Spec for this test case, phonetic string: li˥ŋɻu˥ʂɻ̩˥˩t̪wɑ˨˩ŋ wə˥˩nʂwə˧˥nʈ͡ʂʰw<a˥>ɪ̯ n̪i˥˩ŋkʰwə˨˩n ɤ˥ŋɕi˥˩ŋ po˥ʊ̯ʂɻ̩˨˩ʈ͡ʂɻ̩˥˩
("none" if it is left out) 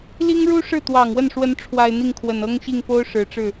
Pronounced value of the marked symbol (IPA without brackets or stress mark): a˨˩